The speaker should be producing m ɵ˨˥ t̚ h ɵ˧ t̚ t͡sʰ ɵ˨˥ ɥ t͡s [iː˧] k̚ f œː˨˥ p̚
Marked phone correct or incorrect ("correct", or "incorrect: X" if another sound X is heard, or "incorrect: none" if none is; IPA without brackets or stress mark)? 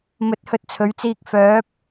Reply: correct